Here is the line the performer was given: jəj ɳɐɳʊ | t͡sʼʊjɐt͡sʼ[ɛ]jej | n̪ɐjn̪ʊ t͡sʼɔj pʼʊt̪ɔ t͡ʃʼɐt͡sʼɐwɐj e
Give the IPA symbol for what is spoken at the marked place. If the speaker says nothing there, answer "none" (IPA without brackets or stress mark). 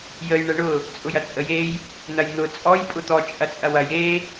ə